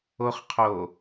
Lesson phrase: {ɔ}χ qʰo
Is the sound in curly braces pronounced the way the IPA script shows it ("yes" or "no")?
no